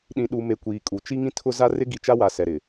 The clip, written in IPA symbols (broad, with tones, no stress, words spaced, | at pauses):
ɗĩ˨ɗu˨me˨ kʷiː˨kʼu˨ t͡ʃi˦ŋĩ˦tʰʊ˦ za˦rɪ˦ ɡi˨t͡ʃa˦wa˨ sɛ˨ɾɪ˨